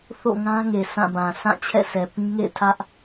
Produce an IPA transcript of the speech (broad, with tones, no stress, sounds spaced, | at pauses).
θ o̰˦˨ ŋ ã˦ ŋ e˨ s ã˦˨ b ã˨ s ã˦˨ t͡ɕʰ ɛ̰˦˨ sʰ ɛ˨ p ĩ˦ ŋ ḛ˦˨ ɪ̯ tʰ ä˦ ʔ